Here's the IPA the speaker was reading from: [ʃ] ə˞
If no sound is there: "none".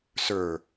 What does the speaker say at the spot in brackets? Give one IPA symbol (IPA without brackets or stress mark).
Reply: s